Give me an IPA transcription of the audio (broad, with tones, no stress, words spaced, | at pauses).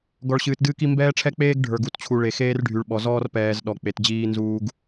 ɡɔ˨ɭɕɨː˨tdɨː˦ki˦ mbɛː˦ʈ͡ʂʰɛ˦k͡peː˦ɡ ɖʱə˞˨ɡu˨tt͡ɕʰu˨ɭe˨ xeː˦rɖʱy˨ɭɓɔ˨ zɔː˦rpɛː˨z ɗɔ˨ k͡pe˨td͡ʑiː˦nzuː˦ɡ